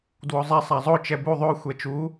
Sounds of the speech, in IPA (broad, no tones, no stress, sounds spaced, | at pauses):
d w o zˤ ɛ sˤ a zˤ o t͡ʃ ɛ b u ðˤ o xʷ ɛ t͡ʃ u